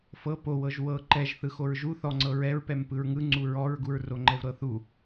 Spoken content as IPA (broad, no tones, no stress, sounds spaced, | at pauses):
f ɤ p o w ɤ ʒ w ɤ ǃ ɛ ʒ θ ɯ x o ɹ ʒ u θ ɔ ŋ͡ǀ ɤ ɹ ɛ ɹ p ɛ m p ɯ ɹ ŋ ɯ ŋ͡ǀ u ɹ ɔ ɹ ɡ u ɹ r o ŋ͡ǃ ɛ v ɾ ɤ θ u